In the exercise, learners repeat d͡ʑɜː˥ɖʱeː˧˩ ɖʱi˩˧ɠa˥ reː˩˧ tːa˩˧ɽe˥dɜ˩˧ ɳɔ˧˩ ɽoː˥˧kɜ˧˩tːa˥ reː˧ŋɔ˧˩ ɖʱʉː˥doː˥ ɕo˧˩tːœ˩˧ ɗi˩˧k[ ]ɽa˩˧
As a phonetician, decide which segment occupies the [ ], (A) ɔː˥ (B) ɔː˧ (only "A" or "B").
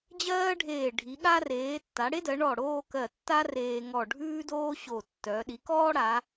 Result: A